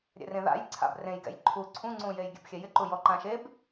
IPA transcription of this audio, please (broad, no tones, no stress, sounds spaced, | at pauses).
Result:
ɾʲ ɛ̰ r ẽ ð a̰ j ǀʰ a̰ b r ẽ j ɡ ɛ̰ j ǃʰ u ǀʰ ũ ŋ͡ǀ ũ j e j ɡʲ ɛ̰ b xʲ ɛ j ɪ ǃ u j ɔ ǃ ã ʃ e b